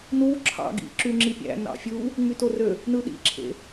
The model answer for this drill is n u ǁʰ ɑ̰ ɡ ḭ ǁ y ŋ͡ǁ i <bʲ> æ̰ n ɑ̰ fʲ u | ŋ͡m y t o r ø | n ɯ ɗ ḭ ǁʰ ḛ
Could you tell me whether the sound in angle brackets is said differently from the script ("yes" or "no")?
yes